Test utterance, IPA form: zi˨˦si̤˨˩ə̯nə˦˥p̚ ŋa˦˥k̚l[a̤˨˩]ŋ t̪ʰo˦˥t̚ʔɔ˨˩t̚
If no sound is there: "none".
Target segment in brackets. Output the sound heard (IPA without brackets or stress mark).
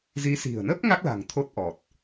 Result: a̤˨˩